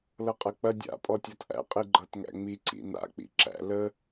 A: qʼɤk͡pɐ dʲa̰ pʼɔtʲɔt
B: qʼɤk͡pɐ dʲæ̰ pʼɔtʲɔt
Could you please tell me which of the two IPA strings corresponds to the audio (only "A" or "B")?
A